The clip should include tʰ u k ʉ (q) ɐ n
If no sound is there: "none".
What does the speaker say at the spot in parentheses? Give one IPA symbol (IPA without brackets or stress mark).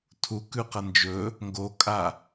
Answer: q